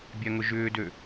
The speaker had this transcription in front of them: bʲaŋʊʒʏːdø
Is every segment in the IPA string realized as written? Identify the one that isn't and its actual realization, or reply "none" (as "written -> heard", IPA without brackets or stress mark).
none